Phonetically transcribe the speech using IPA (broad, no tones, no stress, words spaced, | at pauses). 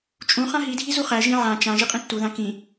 t͡ʃʼũχã ɦidʱi zuχæʒĩ ʕã t͡ʃãʒi qʼĩtːuðã kĩ